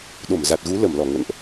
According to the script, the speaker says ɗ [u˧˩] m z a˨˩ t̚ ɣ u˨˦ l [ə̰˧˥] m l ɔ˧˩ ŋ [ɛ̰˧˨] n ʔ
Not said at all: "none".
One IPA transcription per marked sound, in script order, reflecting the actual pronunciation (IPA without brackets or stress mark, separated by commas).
o˧˩, ə˧˩, ə̰˧˨